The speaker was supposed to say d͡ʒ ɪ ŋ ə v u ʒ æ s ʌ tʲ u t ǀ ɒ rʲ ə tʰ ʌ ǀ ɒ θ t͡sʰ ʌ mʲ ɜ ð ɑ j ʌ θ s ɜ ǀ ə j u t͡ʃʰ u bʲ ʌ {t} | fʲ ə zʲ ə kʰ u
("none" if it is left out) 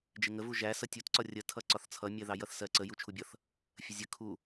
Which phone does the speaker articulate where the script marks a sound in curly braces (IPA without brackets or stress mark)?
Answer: θ